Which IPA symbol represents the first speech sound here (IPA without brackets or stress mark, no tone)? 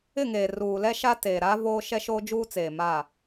ɪ